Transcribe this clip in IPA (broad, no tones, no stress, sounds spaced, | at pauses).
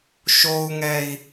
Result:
ʃ o u̯ ŋ ɛ i̯